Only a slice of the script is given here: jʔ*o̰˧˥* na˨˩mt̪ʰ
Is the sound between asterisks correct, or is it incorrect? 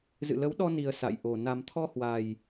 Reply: incorrect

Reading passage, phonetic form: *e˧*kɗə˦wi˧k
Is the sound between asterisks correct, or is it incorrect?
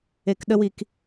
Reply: correct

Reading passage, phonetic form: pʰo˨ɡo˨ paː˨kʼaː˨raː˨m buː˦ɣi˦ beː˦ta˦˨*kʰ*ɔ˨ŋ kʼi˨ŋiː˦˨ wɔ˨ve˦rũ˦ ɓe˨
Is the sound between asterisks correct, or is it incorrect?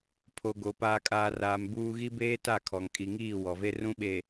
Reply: correct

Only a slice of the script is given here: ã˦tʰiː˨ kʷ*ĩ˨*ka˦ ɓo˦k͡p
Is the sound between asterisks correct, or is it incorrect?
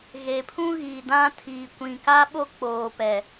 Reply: correct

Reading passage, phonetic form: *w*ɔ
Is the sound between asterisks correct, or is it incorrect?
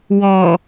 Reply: correct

